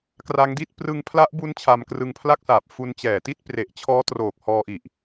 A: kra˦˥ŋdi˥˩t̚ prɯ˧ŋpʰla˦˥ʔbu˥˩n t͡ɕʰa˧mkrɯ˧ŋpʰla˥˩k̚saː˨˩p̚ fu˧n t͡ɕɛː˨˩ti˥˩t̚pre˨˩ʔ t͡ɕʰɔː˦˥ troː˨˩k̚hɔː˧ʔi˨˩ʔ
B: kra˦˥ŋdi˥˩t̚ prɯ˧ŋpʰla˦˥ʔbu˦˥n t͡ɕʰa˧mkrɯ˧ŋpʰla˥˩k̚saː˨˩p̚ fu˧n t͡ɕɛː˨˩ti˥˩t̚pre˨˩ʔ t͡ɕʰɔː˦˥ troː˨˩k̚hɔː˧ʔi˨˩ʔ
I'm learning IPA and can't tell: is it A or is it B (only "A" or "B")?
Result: B